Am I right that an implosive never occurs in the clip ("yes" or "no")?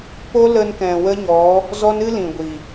yes